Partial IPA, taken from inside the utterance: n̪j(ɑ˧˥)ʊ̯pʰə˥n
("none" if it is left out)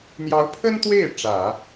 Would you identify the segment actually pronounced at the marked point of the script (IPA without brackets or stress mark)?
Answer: ɑ˧˥